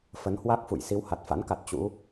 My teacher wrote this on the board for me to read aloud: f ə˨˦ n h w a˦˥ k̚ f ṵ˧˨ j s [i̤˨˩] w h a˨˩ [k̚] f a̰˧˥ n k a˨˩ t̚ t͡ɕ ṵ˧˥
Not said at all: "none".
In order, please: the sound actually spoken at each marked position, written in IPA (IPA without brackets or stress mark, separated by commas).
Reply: i˨˦, t̚